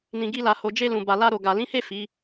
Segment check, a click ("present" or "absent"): absent